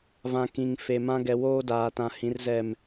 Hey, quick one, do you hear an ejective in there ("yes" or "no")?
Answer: no